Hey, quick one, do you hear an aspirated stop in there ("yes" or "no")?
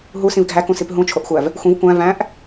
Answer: yes